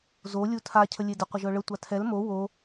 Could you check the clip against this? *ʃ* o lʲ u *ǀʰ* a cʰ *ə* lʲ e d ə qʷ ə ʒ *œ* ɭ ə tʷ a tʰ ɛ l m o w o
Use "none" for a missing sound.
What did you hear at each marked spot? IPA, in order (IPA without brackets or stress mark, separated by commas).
z, tʰ, ə, œ